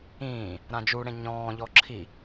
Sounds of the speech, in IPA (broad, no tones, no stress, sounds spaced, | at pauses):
ĩː | ɾ ã d͡ʒ u ɽ ẽ ɲ ɔ̃ː ʎ ɔ ǁʰ i